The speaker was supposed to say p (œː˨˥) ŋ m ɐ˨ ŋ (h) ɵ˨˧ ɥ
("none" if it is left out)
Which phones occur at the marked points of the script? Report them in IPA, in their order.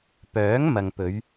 œː˨˥, p

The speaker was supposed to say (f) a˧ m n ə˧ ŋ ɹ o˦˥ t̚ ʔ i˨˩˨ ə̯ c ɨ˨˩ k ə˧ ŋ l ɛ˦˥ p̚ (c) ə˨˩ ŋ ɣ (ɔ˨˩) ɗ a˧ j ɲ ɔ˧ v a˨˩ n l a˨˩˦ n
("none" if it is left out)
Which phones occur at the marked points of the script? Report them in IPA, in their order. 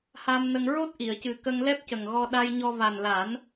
h, c, ɔ˧

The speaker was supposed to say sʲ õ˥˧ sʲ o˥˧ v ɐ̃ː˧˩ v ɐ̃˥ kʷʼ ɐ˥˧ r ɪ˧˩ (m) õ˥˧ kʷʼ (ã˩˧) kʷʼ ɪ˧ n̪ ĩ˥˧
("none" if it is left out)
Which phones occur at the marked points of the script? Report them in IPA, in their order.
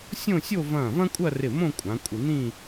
m, ã˩˧

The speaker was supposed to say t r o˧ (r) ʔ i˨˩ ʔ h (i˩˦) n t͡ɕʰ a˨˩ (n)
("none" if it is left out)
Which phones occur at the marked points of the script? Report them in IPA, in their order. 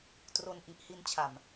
n, i˧, m

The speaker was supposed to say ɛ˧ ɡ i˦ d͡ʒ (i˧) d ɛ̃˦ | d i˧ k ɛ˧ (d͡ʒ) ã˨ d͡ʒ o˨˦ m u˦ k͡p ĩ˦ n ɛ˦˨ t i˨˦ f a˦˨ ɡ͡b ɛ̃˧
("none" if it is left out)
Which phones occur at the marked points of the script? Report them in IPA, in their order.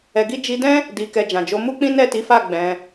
i˧, d͡ʒ

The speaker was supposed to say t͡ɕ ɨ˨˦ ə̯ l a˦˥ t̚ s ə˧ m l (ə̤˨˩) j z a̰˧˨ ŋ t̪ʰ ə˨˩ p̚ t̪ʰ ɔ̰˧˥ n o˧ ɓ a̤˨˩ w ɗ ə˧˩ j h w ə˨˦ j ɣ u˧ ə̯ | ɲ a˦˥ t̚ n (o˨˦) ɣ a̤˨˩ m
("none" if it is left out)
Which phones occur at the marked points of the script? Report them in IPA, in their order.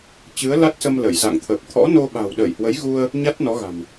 ə˧˩, ɔ˨˦

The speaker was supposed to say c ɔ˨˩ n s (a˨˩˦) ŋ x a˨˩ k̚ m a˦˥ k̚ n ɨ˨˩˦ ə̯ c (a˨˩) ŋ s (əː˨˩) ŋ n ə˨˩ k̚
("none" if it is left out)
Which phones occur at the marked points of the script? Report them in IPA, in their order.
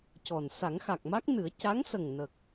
a˨˩˦, a˧˥, ə˨˩

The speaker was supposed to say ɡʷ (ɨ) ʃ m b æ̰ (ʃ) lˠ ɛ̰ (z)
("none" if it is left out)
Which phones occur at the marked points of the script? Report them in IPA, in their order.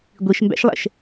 i, ʃ, ʃ

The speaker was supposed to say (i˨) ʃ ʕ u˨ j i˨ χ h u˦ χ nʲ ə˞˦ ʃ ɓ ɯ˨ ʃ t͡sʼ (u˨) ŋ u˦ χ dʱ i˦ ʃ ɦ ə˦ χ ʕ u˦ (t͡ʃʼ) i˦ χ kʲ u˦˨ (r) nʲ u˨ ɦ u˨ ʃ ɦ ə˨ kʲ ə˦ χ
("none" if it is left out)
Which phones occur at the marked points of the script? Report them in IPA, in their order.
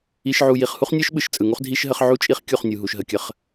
i˨, ɯ˨, t͡ʃʼ, χ

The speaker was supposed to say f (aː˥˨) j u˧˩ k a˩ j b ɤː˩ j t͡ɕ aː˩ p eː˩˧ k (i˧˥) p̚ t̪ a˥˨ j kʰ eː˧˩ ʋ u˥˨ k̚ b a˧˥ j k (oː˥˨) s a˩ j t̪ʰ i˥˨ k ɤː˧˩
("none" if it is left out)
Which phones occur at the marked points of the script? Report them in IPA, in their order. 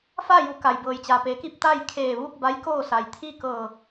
aː˥˨, i˧, oː˥˨

